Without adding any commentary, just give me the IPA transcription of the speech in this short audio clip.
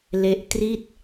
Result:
l e˦˥ ʔ t r i˥˩ t̚

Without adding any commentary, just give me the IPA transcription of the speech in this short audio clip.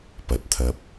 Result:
p ɐ˨˥ t̚ t̪ʰ ɐ˧ p̚

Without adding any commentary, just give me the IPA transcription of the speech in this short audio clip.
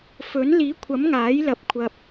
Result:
f ɵ˨˥ n l iː˨˥ kʷʰ ɐ˨˥ m ŋ aː˨˥ j l ɐ˨˥ p̚ kʷʰ ɐ˨ p̚

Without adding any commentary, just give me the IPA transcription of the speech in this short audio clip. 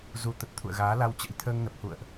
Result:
z u˨˦ t̪ ə˨˩ t̚ t̪ʰ ṵ˧˨ ə̯ ɣ aː˨˦ l a˧ w t͡ɕ ə̰˧˥ j t̪ʰ əː˧ ŋ n ə˨˩ p̚ h ṵ˧˨ ə̯ ʔ

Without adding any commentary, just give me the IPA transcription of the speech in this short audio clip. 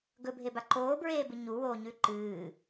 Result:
ɡ ɵ bʱ e b a ǃ oː b ɹ eː b ɨ ɲ u w oː ɲ ʉ ǃ ɨː

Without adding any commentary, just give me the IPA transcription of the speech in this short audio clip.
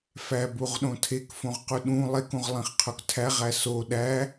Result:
f æ b u ʁ ɗ õ tʰ e k f õ ʁ q u ɗ ũ lˠ e k ũ ʁ lˠ ĩ χ qʰ o k tʰ æ ʁ æ s o ɗ æ

